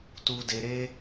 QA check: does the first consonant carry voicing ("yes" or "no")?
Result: no